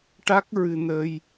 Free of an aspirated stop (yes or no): yes